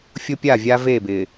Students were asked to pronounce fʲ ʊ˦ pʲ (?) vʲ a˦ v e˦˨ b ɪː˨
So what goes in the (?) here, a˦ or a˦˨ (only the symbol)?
a˦˨